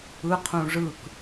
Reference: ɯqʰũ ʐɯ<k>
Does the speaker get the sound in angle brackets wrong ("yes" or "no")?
no